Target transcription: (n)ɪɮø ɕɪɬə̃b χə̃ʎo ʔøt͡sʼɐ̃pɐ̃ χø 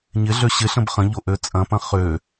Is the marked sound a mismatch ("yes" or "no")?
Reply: yes